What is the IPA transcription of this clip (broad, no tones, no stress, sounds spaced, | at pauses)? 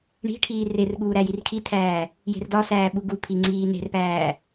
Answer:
ɳ i̤ ʈʰ iː r e r ɠ uː ɾ æ j i r kʰ i tʰ æː | j e̤ r d ɒ s æː ɓ u ɡ u pʰ i ŋ͡ǀ iː n e̤ r p æː